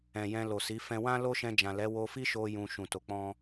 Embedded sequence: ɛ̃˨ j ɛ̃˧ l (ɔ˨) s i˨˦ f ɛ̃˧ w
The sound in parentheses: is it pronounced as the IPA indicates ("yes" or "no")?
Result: no